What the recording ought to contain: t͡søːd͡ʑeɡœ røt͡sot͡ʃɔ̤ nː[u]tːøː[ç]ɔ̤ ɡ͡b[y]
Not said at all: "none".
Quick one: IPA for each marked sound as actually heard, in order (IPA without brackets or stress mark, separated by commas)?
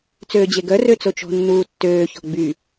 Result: uː, ç, y